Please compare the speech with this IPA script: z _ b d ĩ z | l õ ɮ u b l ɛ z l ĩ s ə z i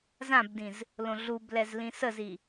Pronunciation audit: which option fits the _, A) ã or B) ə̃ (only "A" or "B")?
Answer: A